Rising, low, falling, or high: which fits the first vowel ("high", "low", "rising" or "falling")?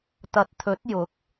low